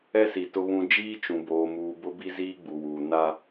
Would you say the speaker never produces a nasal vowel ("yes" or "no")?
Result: no